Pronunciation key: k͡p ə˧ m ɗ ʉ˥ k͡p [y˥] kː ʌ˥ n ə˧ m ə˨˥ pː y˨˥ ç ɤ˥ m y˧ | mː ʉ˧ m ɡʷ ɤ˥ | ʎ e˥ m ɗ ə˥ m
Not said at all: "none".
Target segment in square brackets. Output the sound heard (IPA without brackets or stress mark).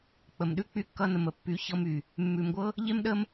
y˥